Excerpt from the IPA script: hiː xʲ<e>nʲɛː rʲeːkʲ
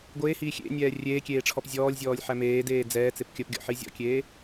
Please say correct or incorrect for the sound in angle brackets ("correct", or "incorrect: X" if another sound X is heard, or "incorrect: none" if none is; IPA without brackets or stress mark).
incorrect: ḛ